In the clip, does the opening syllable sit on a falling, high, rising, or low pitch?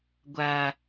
high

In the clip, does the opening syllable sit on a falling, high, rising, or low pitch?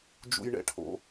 high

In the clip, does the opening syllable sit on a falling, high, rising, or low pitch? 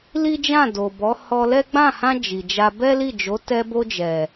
high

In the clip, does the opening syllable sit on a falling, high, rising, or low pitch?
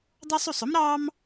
high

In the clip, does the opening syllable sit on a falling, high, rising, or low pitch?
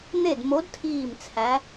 falling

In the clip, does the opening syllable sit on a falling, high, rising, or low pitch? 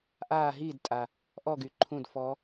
falling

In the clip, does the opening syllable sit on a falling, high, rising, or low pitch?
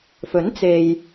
rising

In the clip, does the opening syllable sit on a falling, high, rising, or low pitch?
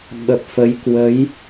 low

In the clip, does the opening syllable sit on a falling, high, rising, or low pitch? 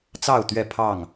falling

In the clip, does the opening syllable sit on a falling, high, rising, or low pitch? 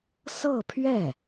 falling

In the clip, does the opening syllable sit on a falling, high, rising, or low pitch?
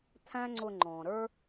high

